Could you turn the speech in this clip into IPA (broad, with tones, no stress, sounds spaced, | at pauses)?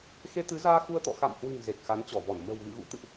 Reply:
x e˧ t̪ ɨ˨˦ z aː˧ x u˧ ə̯ t̪ ɔ̰˧˨ x a̰˧˨ m h w ɨ̤˨˩ ŋ z e˨˩ k̚ x a˨˦ n t͡ɕ ɔ˧˩ v ɔ˧˩ n m ə̤˨˩ w ɣ ɨ̰˧˨ ɣ ṵ˧˥ t̪ ɨ̰˧˨ ʔ